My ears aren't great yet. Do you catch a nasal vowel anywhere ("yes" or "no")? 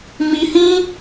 yes